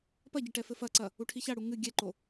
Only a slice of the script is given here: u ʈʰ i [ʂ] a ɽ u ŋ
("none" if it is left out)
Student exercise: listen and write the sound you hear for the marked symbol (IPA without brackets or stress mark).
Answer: ç